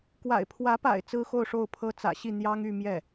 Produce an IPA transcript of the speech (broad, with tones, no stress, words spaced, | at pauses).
kwa̰˨˩ɪ̯pʰwä˧˥pa̰˨˩ɪ̯ t͡sɹ̩˥xo˥˧ʊ̯ʂo˥˩ʊ̯pʰɤ˥ t͡sä̰˨˩ɕi˥˩ n̪jɑ˥ŋy˥˧ mjɛ˥˩